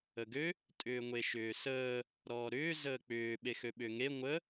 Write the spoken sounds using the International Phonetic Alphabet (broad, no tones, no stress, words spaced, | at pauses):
əɡø | tʼʏːŋʷeʃʏːsəː | ɾɔːɾʏː zəːk͡pʏː ɓexøɓʏːŋe ŋʷə